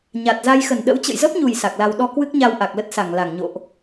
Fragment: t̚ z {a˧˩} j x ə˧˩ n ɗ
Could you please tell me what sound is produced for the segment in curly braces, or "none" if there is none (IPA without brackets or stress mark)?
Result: a˧